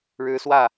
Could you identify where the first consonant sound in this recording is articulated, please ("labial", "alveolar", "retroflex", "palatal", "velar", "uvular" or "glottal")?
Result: retroflex